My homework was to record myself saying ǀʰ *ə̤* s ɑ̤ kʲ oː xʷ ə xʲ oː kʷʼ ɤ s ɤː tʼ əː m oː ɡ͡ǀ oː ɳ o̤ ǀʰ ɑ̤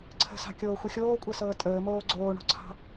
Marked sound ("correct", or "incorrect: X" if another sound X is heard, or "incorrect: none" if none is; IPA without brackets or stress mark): correct